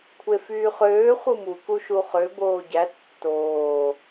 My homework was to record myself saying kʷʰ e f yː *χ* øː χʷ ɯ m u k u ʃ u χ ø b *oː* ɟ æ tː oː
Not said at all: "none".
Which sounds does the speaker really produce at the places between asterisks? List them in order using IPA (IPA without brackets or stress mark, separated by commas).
χ, oː